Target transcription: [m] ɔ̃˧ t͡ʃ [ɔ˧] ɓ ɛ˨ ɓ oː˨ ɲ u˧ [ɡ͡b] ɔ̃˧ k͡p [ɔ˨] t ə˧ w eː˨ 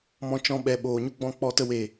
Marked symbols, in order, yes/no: yes, no, yes, no

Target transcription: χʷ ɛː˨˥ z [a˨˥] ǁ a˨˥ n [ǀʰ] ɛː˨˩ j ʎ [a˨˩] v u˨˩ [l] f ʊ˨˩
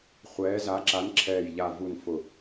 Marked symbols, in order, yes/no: yes, no, yes, no

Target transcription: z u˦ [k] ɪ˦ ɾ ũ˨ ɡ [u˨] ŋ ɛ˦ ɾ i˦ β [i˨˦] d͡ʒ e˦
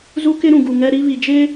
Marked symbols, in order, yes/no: yes, yes, no

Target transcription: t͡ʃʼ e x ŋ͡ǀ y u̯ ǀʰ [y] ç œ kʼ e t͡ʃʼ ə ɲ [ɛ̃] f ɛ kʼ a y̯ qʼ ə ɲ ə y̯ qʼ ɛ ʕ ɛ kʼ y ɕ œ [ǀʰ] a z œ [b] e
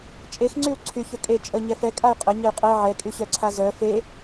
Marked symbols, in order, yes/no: yes, no, yes, no

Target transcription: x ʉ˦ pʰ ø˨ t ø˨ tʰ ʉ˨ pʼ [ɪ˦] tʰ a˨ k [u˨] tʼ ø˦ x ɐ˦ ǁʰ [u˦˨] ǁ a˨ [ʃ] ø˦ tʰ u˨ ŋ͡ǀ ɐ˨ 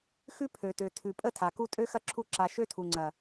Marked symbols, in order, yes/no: no, no, yes, yes

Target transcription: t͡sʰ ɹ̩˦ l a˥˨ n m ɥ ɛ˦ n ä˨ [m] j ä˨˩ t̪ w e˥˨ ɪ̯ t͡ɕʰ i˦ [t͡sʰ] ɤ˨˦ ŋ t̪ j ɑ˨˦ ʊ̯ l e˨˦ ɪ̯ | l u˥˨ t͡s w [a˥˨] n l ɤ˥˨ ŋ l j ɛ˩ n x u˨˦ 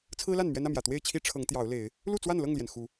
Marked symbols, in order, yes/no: yes, no, yes

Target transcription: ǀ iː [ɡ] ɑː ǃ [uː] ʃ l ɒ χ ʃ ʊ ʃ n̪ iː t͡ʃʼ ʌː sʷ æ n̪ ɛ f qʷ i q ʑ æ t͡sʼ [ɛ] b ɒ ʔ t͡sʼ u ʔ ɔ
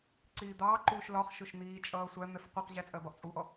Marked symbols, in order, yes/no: no, yes, no

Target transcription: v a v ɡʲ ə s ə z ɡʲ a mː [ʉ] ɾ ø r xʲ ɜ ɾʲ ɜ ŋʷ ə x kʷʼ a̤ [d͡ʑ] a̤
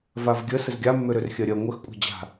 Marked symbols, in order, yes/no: no, yes

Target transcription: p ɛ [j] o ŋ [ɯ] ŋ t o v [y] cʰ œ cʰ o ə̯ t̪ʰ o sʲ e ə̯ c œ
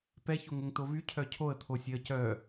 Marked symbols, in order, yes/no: no, no, yes

